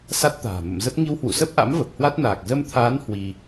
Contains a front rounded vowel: no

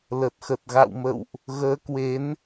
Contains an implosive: no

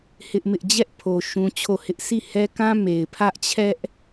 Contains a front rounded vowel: no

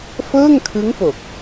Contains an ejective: no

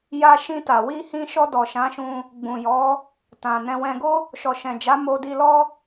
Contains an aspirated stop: no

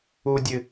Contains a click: no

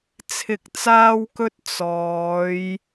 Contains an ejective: no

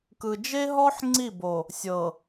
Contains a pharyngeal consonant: yes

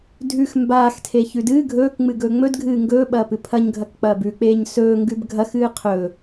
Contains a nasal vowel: no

